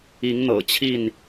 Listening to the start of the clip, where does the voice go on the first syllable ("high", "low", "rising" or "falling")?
rising